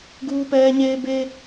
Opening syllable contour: high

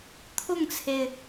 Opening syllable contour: falling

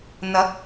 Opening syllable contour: rising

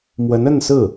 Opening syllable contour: rising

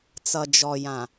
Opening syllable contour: low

